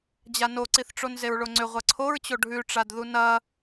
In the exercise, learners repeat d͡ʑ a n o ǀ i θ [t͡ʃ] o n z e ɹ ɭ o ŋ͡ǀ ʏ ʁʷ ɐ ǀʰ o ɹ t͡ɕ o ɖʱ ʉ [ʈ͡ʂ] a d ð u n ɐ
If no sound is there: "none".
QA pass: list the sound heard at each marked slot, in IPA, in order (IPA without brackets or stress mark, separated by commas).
ʈ͡ʂ, ʈ͡ʂ